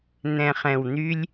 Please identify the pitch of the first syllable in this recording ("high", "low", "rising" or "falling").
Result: low